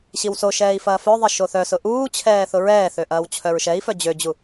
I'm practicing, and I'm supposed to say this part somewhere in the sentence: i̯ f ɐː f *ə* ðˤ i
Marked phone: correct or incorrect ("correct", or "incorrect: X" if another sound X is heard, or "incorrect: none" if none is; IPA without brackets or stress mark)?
incorrect: œ